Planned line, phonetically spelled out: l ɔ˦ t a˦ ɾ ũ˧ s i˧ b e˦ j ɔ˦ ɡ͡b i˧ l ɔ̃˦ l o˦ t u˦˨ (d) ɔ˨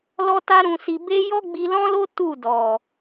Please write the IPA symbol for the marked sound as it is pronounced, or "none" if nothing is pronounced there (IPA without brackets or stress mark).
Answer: d